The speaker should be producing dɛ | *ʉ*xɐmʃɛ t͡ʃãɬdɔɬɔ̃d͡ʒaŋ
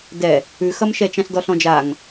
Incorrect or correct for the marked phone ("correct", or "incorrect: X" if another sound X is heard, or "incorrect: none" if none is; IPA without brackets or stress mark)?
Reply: correct